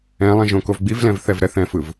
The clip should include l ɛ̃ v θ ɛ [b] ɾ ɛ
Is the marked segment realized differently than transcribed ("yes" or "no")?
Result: yes